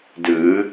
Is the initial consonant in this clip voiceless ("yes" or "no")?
no